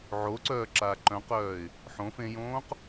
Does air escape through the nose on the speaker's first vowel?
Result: no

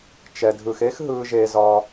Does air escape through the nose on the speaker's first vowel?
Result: no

